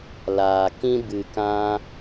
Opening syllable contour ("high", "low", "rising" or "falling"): low